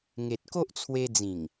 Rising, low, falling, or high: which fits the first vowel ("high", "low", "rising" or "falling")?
low